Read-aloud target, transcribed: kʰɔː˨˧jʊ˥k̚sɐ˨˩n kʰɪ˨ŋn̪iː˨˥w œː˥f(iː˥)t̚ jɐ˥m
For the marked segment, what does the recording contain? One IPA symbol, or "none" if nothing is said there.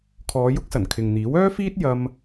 iː˥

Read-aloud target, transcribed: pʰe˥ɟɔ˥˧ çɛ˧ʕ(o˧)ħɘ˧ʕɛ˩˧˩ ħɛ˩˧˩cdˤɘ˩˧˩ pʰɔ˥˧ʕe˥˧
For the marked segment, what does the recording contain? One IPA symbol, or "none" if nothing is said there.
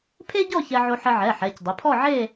o˧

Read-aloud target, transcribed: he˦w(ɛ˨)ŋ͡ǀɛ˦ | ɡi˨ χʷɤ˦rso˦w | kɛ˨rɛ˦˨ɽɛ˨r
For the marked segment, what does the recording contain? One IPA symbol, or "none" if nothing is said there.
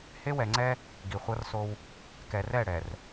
ɛ˨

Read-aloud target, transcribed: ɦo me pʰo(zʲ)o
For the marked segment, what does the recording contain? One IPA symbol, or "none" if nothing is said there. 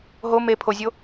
zʲ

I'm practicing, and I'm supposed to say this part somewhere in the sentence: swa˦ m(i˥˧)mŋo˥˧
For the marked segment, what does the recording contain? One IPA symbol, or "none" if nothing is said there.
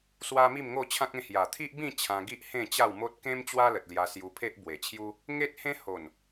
i˥˧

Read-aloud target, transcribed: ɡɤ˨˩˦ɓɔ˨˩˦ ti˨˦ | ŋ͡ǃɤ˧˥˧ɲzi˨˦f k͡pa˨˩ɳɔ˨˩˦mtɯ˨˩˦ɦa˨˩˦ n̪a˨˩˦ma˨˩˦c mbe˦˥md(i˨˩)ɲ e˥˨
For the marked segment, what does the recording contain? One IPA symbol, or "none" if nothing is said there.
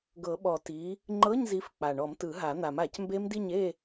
i˥˨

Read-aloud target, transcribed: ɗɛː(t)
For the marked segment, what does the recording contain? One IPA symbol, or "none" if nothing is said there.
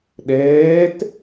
t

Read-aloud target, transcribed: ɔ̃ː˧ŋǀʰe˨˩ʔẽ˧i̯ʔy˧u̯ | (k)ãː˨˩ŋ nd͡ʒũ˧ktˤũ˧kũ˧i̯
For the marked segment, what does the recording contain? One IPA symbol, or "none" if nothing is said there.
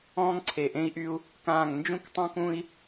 k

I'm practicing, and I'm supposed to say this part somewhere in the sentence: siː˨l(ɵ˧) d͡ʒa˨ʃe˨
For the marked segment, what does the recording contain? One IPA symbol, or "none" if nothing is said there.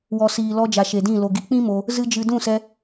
ɔ˧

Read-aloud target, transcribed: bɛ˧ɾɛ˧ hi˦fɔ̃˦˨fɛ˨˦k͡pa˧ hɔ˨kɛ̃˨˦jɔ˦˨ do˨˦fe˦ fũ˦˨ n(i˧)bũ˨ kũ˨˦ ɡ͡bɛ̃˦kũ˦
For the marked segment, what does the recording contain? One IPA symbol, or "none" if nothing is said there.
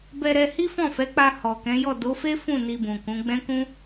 i˧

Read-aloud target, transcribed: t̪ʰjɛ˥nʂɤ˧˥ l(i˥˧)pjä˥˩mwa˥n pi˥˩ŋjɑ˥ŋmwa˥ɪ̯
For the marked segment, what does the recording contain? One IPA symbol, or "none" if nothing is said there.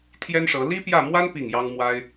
i˥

